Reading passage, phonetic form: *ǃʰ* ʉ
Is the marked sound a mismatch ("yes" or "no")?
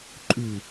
yes